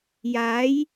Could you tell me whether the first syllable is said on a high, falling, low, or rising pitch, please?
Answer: rising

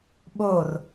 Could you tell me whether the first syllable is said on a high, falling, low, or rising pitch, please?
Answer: falling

